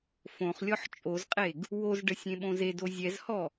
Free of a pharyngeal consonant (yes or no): no